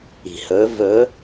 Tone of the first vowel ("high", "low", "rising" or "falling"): low